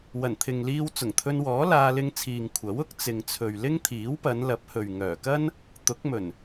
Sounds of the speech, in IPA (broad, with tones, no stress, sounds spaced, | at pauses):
w ɐ˨˩ n t̪ʰ ɪ˨ ŋ l iː˧ w t͡s ʊ˨˩ ŋ t̪ʰ ɵ˧ n w ɔː˨˥ l aː˧ l ɪ˧ ŋ t͡sʰ iː˨ ŋ kʷʰ ɐ˨˥ w ʊ˥ k̚ t͡s ɪ˨ ŋ t͡sʰ ɵ˨ ɥ l ɪ˥ ŋ t̪ʰ iː˨˥ w p ɐ˨˧ n l ɐ˨˥ p̚ h ɵ˨ ɥ ŋ œː˨˩ k ɐ˥ n | t̪ ʊ˨˥ k̚ m ɵ˨˩ n